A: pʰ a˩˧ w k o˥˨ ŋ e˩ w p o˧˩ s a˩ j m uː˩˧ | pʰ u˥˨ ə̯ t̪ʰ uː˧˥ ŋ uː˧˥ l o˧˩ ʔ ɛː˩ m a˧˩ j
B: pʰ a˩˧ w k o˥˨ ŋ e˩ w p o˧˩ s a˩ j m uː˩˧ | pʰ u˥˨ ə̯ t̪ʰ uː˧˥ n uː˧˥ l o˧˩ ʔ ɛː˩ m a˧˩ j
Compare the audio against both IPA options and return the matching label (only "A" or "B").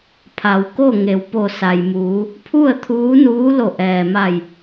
B